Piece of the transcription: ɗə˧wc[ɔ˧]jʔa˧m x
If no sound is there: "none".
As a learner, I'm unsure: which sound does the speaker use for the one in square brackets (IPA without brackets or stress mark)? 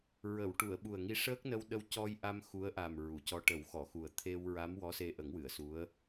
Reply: ɔ˧